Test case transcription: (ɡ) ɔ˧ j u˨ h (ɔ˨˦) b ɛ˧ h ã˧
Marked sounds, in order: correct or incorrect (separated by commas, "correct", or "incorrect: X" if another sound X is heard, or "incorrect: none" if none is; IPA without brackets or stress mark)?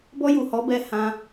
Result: incorrect: b, correct